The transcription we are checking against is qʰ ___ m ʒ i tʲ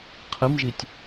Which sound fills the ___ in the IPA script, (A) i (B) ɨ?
B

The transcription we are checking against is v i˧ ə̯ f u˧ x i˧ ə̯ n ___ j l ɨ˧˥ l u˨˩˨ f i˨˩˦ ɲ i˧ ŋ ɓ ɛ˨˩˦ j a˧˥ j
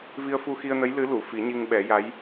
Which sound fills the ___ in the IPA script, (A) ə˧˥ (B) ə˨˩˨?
A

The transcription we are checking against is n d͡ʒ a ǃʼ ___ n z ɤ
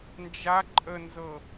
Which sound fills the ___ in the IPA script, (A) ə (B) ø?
A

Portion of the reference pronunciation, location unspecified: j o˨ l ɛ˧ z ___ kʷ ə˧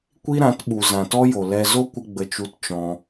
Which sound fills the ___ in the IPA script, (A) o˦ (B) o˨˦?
A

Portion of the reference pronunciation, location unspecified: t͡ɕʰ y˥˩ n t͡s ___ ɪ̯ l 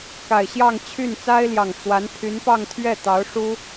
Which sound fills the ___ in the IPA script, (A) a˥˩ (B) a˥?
B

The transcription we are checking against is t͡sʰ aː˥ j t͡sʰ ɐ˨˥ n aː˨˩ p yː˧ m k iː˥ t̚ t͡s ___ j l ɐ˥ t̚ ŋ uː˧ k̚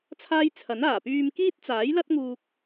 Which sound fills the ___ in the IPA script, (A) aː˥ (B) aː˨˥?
B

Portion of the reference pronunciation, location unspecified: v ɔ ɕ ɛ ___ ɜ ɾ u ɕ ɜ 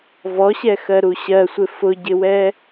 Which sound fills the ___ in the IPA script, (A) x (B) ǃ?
A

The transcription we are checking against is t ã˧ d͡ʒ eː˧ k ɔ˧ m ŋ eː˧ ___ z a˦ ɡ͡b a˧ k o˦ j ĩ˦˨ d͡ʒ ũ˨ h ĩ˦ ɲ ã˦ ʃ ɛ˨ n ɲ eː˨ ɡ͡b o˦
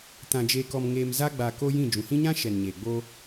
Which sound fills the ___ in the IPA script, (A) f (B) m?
B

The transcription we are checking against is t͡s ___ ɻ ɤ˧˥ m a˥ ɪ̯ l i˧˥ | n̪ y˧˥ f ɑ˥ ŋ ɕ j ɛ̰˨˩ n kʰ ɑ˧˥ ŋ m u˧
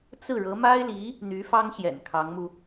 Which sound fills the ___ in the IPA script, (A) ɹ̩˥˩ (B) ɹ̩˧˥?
A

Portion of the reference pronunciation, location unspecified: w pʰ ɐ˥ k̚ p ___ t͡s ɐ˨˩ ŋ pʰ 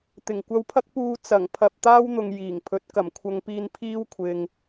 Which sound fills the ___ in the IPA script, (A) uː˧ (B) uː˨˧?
A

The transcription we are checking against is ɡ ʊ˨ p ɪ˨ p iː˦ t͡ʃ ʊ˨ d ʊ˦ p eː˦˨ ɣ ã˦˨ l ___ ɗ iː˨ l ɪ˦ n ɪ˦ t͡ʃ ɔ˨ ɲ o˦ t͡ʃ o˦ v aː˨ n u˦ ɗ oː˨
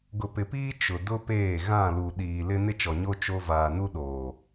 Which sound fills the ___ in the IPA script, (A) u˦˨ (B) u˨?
B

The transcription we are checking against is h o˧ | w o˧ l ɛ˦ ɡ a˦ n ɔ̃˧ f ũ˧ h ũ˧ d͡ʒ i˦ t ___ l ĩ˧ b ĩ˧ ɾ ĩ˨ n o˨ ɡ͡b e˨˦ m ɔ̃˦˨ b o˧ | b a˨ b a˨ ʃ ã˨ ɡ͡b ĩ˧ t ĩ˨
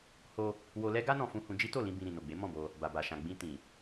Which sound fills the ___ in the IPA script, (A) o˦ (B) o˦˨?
B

